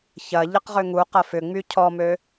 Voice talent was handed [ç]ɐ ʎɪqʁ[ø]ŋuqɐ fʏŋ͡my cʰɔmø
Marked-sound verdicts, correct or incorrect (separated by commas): correct, correct